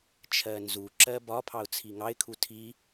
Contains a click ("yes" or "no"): yes